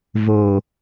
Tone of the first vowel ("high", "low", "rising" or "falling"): low